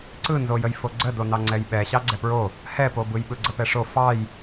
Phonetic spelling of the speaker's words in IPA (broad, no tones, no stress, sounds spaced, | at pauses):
ǀ ɯ n z o j ə j f o ɡ͡ǀ ə d o n ɑ ŋ͡ǀ ɛ j ɓ ɛ ɕ ɑ ɡ͡ǀ ɛ p ɹ o | h ɛ p o b ɯ j ɓ ɯ ɡ͡ǀ ə p ɛ ʂ o f ɑ j